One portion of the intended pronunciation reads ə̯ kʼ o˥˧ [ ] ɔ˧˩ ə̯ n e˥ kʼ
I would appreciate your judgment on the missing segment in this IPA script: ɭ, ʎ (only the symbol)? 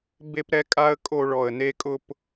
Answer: ɭ